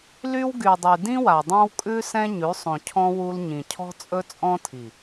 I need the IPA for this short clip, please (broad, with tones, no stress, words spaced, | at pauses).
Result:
ly˦w ɡy˨dˤy˨ dĩ˦wa˨dˤã˦wkʼʉ˦ sɛ̃˦ɲʉ˨˦sˤõ˨cʰɔ̃˦ wu˦l ɲĩ˨cʰɔ̤˦t͡sʼɵ˦ t͡sʼɔ̃˦tʰi˨